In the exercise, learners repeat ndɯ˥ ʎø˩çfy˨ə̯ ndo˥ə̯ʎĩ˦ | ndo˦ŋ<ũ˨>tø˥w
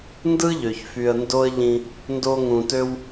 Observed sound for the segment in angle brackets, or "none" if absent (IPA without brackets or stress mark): ũ˨